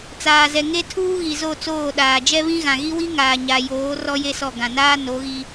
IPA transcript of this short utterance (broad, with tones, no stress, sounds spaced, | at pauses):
t͡s aː˨ z ɛ˨ ŋ e˦ tʰ uː˦ ɣ i˨ z o˦˨ t͡s oː˦˨ ɗ aː˨ d͡ʒ ɛ˦ β ĩ˦ ɣ ã˨ ɣ i˦ w i˦ ŋ aː˨ ɲ a˨ j oː˨˦ r ɔ˦ j e˦ s ɔ˦˨ ɡ ã˨ n aː˦ n o˨˦ ɣ i˦